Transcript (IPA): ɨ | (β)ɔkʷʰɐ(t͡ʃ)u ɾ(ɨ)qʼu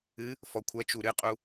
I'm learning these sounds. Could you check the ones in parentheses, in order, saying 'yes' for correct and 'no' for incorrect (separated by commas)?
no, yes, yes